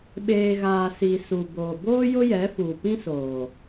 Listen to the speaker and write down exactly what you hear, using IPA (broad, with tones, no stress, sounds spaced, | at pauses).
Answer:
ɓ eː˨ ɣ aː˨ s i˨ s u˨ b oː˨ b oː˦ j ʊ˦ j ɛ˨˦ f uː˨ p ĩ˦ s oː˨